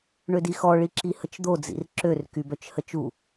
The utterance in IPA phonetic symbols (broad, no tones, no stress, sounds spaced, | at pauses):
ɳ ø d i x ɔ ɭ i ǁ i h ə t͡ʃ d̪ o d͡z ḭ r ǁ ø r k y b œ t͡ʃ h ə t͡ʃ u